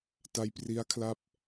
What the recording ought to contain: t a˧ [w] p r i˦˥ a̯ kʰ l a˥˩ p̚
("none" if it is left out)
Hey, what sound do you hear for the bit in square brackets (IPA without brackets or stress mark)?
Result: j